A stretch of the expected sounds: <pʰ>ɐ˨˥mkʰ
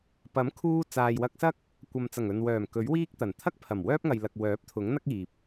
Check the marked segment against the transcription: incorrect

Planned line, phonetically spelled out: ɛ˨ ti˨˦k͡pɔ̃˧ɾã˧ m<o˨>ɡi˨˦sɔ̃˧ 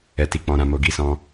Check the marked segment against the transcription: correct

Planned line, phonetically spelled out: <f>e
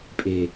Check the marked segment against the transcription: incorrect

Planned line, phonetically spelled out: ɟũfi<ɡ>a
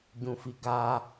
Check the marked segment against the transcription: correct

